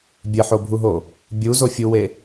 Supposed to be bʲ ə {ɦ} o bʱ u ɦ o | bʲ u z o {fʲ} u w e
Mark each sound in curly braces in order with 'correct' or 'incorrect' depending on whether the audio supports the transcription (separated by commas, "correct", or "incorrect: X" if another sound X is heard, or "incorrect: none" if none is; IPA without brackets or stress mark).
incorrect: ħ, correct